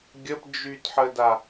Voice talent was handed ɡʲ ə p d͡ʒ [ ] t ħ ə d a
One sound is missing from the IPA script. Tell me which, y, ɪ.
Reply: y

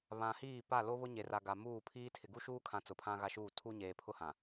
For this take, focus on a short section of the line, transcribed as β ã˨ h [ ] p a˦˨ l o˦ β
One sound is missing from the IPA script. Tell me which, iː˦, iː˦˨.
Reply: iː˦˨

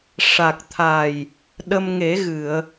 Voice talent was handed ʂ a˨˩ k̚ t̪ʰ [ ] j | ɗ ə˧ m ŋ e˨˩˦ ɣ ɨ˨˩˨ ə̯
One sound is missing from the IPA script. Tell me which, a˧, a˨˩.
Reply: a˨˩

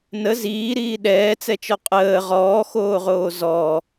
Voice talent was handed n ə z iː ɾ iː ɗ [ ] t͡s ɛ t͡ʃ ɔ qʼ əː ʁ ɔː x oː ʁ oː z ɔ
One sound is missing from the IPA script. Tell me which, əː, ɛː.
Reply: ɛː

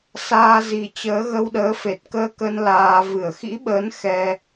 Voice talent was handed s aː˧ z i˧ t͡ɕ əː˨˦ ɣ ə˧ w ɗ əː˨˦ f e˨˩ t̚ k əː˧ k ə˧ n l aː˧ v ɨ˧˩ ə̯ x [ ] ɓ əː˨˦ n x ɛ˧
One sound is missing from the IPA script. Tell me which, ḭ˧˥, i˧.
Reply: ḭ˧˥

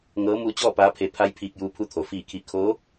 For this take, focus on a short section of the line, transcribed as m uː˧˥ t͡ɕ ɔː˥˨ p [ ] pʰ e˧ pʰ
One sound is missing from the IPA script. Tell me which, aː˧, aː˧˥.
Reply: aː˧˥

